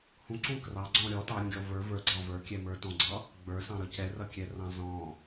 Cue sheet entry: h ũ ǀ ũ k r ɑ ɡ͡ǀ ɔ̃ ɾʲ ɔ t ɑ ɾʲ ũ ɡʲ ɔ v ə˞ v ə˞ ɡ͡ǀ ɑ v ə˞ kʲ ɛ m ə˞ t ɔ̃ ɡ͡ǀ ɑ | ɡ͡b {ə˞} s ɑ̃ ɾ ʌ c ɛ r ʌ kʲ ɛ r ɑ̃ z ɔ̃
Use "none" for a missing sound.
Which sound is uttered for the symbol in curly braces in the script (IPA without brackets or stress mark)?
ə˞